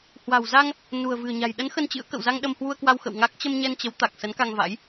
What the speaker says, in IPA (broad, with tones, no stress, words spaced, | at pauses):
hwa̤˨˩wza˧ŋ | nṳ˨˩ə̯vɨ̤˨˩ə̯ɲa̤˨˩j ɗə˨˦n xə˧nt͡ɕɨ̰˧˥ə̯ kə̰˧˨wza˧ŋ ɗə˧mhwu˧ə̯kwa˧wxə̰˧˨w ŋa˦˥k̚ t͡ɕə˧mɲɛ˧nt͡ɕə˨˦w t̪a˨˩k̚ sə˨˦nka˧ŋva̰˧˥j